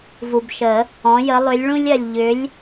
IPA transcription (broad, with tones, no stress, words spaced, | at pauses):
vu˨bʃə˨˩˦ | ɔ̃˨˦jə˨˦ lˠʏ˨˦lʲɭũ˦lʲɜ˨lʲ ʎʏ˨˦lʲ